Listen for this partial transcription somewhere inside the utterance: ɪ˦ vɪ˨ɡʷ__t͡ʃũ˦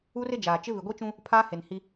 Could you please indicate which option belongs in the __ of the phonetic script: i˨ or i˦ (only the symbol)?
i˦